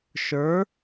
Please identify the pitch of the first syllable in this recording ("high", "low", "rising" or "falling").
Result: rising